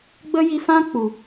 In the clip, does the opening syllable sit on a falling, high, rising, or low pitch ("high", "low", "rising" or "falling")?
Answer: high